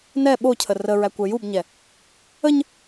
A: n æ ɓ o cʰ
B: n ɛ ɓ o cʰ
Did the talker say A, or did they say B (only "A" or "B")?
B